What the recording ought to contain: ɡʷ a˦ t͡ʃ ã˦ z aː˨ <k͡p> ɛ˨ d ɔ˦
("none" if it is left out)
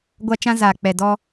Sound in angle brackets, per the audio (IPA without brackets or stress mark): k͡p